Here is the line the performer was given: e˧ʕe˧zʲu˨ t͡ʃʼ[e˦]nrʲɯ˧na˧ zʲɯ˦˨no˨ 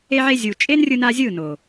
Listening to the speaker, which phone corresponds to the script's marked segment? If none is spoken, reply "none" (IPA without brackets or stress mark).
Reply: e˦